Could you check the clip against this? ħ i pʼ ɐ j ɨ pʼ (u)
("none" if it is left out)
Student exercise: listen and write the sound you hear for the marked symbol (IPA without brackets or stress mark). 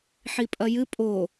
o